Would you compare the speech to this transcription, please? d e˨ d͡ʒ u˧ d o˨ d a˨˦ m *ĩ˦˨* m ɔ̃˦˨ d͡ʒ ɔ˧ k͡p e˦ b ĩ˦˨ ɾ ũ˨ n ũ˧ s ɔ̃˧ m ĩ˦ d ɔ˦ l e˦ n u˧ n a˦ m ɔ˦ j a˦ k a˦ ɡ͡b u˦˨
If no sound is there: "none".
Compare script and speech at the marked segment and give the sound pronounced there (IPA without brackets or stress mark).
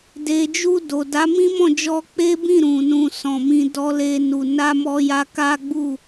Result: ĩ˦